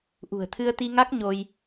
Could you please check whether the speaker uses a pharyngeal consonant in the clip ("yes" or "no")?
no